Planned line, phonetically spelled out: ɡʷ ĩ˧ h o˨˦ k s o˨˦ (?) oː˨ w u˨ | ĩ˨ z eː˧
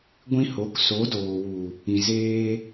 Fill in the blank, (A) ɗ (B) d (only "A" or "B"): B